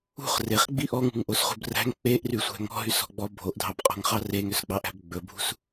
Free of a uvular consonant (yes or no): no